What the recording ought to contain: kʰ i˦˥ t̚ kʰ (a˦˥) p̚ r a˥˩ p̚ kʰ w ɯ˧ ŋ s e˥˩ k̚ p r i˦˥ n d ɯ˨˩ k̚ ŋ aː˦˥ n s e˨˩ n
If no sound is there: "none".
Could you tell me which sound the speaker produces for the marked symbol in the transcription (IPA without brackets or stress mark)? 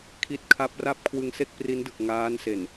a˦˥